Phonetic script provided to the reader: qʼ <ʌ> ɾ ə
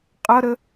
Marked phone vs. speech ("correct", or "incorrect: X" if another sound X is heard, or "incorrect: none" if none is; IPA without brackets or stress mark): correct